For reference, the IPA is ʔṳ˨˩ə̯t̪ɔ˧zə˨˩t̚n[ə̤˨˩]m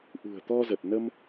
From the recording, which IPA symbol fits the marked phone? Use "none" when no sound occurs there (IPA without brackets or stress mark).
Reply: ə˧